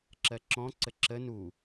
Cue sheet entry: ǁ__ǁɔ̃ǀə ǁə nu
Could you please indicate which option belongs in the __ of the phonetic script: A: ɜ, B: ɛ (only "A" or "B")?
A